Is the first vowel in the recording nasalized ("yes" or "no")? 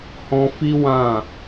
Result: yes